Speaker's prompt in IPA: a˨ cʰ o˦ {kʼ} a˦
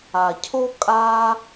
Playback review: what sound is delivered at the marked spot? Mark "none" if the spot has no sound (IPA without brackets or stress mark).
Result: kʼ